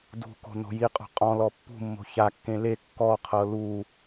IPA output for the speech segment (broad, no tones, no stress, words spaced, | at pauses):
dṳko̤ no̤jiqʼɔ̤ qʼɔ̃lɔ pːṳmːo̤ çakːẽ le kːɔqʰɤ lu